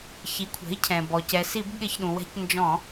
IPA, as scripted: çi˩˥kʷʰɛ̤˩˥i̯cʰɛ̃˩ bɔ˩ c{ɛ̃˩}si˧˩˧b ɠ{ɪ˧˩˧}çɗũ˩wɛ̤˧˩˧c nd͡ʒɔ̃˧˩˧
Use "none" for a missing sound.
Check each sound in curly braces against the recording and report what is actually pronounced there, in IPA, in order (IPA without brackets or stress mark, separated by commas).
ɛ˩, ɪ˧˩˧